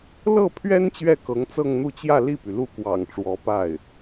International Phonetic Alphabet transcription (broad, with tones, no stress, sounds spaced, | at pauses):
l ɤ˥˩ pʰ ɥ ɛ˥ n t͡ɕ ɥ ɛ˥˩ k ɤ˧˥ ŋ t͡s ɤ˥˧ ŋ n̪ u˥˧ t͡ɕ j ä˥˧ l i˥˩ p y˩ l u˥˩ k w ɑ̰˨˩ ŋ ʈ͡ʂ w ɔ˧˥ p a˥˩ ɪ̯